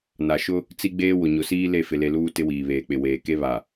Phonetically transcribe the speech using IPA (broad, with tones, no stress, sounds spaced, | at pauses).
n a˨ ʃ ʊ˦ | t͡s i˦ ɡ͡b eː˦ w ʊ˨ ɲ ʊ˨ s iː˦ l e˦˨ f ɪ˨ l e˨ l uː˦ t ɪ˦ w iː˨ β eː˨ k͡p ɪ˨ w eː˨ k e˦ β a˨